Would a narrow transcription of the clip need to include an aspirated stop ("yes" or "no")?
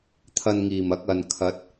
yes